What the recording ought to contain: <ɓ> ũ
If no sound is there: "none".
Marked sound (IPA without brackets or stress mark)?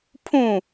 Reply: pʰ